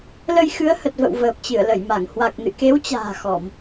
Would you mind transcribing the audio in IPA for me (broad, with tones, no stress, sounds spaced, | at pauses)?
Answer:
l ə˧ j x ɨ˨˦ ə̯ h ə˨˩ t̚ v ə̰˧˨ w v əː˨˩ p̚ t͡ɕ ɨ˧˩ ə̯ l ə˧˩ j m a˧˩ ŋ h w a˨˩ k̚ n ɨ̰˧˨ k e˨˦ w t͡ɕ a̤ː˨˩ x ɔ˧˩˨ m